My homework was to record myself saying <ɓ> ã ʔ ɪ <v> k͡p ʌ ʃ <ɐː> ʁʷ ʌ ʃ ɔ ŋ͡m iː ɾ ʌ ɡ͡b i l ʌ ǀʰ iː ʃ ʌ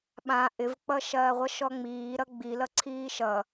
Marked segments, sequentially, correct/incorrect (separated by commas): correct, correct, correct